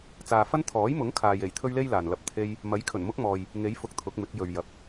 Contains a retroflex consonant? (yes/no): no